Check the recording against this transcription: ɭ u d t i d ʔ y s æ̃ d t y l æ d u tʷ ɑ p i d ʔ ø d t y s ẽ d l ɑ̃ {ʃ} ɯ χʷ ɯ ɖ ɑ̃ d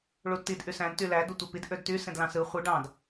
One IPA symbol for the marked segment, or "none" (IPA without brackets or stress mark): s